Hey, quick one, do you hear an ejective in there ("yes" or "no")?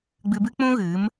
no